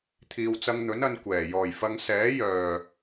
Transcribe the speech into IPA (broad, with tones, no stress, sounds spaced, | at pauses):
t̪ʰ iː˨ w t͡s ɐ˧ ŋ n̪ ɵ˨˥ n ɐ˨˧ n kʷ ɛː˨˩ j ɔː˨˩ j f ɐ˨˧ ŋ s ɛː˨˥ j œː˨˩